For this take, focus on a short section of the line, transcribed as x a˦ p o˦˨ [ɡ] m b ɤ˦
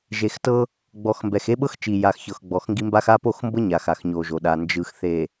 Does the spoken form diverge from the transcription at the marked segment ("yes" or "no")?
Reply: yes